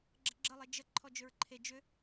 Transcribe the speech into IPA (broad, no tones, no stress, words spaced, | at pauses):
ɡ͡ǁəɡ͡ǁəlˠe d͡ʒə ǃʰɔd͡ʒʏɹǃʰe d͡ʒʏ